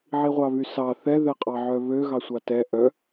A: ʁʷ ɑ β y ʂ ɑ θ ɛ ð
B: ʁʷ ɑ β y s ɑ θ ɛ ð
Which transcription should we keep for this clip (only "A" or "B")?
B